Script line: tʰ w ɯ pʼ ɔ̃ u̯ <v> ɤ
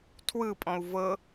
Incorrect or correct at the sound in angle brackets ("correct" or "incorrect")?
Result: correct